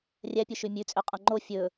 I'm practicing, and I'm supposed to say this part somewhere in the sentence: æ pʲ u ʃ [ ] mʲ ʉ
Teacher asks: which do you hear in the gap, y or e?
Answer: y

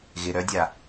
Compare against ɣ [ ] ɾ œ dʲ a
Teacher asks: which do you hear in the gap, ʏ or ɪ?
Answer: ɪ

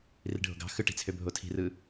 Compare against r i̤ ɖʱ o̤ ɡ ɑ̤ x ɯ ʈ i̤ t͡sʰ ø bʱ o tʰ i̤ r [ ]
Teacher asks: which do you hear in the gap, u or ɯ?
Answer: ɯ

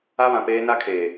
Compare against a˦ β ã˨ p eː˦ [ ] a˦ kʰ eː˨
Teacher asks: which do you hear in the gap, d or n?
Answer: n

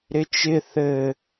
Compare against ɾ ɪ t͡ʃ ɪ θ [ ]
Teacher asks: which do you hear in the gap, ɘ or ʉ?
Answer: ɘ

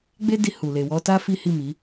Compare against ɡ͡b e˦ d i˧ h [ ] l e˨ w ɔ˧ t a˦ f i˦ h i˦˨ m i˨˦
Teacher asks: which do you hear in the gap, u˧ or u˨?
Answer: u˨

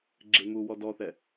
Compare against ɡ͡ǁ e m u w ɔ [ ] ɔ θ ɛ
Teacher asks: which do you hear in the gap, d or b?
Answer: d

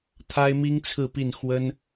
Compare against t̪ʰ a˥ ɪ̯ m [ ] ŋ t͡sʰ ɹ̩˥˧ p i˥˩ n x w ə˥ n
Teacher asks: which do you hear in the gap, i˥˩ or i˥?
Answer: i˥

